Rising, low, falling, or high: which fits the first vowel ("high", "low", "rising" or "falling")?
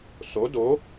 rising